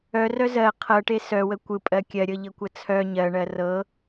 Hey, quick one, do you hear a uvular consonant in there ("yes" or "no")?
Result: yes